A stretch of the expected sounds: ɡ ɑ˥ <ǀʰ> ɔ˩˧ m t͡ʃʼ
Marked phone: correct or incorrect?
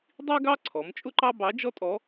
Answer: correct